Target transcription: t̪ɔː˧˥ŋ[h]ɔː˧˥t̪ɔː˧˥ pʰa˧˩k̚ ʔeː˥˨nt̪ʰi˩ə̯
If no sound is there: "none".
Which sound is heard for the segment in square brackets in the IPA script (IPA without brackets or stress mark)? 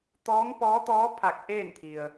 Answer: p